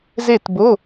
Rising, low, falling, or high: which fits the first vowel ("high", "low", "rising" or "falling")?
falling